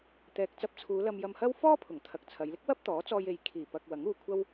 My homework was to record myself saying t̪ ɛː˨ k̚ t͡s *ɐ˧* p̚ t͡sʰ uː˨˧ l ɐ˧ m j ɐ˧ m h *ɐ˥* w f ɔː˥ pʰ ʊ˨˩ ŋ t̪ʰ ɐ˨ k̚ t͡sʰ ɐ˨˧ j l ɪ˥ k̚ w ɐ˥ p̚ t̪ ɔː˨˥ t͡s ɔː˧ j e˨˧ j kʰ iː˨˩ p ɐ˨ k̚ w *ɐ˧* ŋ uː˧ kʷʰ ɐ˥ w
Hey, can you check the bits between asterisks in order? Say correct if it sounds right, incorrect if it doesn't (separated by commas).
correct, correct, incorrect